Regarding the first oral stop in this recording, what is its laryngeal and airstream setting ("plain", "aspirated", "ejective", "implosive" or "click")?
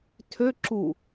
aspirated